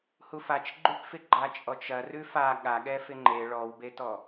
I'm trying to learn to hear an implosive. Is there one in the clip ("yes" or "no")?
yes